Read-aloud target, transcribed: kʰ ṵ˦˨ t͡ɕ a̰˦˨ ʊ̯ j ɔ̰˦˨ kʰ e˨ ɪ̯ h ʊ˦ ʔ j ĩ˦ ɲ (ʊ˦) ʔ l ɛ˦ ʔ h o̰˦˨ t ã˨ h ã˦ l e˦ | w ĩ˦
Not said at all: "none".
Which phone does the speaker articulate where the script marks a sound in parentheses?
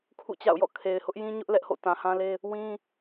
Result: ʊ˦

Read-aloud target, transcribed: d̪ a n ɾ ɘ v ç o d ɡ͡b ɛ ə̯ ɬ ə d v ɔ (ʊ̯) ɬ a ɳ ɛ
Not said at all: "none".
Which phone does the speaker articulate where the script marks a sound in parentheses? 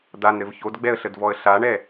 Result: ə̯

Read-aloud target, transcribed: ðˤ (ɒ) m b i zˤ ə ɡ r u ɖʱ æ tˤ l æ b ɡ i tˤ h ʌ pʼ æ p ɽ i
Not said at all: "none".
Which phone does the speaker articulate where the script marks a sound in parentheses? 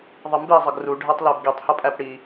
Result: ʌ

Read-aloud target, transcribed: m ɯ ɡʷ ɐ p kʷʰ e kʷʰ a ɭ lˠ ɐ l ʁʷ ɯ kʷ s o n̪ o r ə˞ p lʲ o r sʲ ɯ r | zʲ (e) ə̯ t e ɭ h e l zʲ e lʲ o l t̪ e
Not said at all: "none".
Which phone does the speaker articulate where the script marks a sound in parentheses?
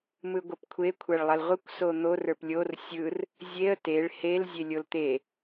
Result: e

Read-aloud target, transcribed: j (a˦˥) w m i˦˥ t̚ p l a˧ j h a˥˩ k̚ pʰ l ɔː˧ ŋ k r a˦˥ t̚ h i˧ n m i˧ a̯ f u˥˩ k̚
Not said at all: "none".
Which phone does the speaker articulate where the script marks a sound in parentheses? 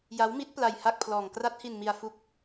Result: a˦˥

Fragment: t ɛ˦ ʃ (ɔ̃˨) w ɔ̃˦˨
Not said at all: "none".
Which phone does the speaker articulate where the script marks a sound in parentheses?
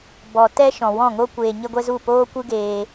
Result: ɔ̃˨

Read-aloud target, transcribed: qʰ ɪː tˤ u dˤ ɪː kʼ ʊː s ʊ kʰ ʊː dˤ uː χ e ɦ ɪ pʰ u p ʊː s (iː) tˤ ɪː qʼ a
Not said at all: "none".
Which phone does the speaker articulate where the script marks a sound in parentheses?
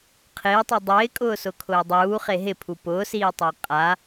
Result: iː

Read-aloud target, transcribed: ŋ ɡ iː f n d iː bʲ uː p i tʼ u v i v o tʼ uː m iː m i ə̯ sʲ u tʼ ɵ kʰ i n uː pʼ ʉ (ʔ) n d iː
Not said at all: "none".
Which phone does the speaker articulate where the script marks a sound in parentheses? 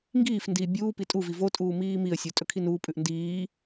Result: ʔ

